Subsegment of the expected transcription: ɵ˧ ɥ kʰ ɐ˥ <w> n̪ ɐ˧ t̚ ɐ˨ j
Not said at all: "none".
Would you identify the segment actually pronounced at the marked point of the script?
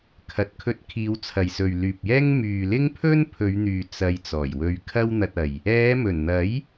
w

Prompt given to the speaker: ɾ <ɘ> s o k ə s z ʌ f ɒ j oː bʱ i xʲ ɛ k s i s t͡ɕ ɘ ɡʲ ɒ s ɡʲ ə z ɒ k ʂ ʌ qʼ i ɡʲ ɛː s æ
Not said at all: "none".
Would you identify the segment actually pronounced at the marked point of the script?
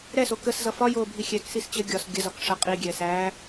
ɛ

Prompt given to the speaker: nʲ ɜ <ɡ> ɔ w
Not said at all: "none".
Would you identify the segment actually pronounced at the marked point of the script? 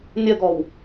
ɡ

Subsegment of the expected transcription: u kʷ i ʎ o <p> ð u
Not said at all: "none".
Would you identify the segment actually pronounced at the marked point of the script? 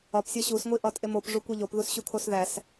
p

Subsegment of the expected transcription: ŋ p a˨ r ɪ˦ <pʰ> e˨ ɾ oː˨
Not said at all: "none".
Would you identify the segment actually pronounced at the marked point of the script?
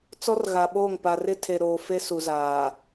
tʰ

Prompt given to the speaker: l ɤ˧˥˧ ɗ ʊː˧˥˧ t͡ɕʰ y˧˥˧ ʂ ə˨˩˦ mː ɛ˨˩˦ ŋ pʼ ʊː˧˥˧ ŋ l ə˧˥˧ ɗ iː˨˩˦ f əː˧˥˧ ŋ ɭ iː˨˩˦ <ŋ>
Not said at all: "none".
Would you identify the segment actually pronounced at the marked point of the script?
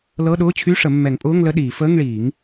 ŋ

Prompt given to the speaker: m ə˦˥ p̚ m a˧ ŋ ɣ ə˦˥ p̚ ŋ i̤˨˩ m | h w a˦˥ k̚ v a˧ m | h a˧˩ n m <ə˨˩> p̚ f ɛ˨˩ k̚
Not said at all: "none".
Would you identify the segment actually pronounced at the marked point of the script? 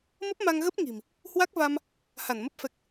ə˦˥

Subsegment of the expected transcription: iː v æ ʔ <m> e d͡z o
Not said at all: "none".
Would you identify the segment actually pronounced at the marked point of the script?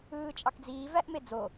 m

